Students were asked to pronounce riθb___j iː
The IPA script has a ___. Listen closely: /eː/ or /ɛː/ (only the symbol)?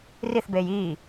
eː